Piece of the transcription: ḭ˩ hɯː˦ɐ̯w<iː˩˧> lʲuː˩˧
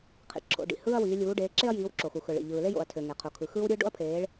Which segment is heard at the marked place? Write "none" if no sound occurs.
iː˩˧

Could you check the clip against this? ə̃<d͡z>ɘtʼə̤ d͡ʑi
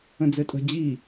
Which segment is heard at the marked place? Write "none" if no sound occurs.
d͡z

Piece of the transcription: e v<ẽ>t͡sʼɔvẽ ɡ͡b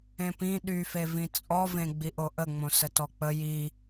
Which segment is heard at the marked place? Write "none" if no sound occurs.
ĩ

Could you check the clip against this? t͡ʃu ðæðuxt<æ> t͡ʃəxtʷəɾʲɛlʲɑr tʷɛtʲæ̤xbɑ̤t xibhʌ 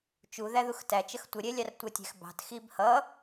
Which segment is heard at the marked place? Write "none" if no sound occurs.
æ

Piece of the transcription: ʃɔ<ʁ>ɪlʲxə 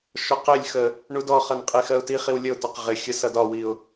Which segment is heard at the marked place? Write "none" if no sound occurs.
q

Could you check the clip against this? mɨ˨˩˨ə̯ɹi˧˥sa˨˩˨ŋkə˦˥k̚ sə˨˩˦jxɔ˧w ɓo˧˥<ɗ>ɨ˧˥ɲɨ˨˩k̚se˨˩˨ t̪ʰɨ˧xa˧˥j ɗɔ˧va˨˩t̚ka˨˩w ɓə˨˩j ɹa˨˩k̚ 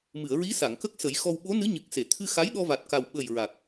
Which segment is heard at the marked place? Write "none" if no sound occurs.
n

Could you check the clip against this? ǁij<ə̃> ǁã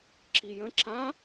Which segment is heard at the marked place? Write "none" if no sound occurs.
ə̃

